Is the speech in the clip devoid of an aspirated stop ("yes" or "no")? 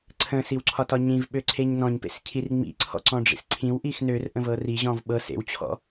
no